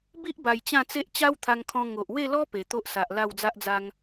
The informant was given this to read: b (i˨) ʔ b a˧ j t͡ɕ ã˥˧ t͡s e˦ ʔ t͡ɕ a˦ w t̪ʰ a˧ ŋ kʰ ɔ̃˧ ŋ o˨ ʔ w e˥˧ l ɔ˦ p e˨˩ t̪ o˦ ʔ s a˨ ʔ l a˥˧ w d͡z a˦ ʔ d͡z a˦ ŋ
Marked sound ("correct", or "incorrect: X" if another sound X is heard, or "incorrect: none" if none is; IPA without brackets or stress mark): incorrect: i˦